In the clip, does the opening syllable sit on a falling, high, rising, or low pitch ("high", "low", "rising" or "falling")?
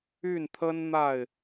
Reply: falling